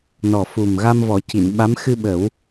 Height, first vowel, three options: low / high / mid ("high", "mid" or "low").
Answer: mid